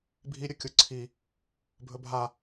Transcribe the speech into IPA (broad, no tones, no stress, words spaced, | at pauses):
bʱi ɾʲɵkʲuǀʰi | bʱɵbʱa